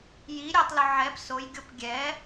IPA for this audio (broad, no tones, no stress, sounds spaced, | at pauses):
j i ɾʲ ɛ tˤ l ʊ ʕ ɛ p s o j ɡʲ o p ɡʲ ɛ